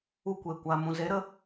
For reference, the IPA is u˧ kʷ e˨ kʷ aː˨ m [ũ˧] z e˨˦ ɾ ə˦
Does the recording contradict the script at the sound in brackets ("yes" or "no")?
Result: yes